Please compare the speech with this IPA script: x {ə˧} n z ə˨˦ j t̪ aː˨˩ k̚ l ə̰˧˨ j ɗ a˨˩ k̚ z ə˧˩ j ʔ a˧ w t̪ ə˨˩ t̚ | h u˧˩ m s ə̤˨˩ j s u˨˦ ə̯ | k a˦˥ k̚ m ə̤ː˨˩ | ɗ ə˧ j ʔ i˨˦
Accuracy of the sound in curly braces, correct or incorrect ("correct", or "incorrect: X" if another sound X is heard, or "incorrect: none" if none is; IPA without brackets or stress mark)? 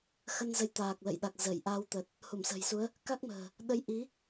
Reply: correct